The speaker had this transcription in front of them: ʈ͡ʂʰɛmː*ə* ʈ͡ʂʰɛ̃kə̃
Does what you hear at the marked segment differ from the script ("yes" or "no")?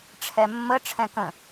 no